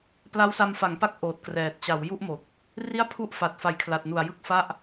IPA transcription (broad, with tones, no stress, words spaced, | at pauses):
pla˦˥wsa˧mfa˩˦ŋpa˦˥k̚ ʔoː˨˩t̚krɛː˨˩t̚ t͡ɕa˩˦wju˥˩ʔmo˨˩k̚ | ri˥˩a̯pʰu˥˩ʔfa˨˩t̚ fa˩˦jkʰla˨˩t̚nu˨˩a̯ jɯ˥˩k̚fa˥˩ʔ